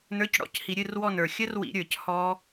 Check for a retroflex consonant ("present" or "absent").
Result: present